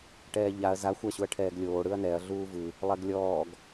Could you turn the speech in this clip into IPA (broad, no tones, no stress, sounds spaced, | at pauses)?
ʈ ɛː ʎ a ɐ̯ z a xʷ a ɕ u ɐ̯ ʈʰ ɛː ɡ lʲ oː ɽ ɯ ɐ̯ n ɛ ɐ̯ ɮ uː v ɯ | lˠ ɛ ɡ lʲ ɔː ɡ